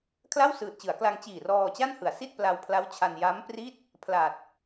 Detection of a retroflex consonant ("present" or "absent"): absent